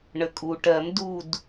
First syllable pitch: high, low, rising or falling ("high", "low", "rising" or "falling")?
low